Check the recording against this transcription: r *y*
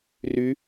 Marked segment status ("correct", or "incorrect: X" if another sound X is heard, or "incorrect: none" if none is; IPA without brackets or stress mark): correct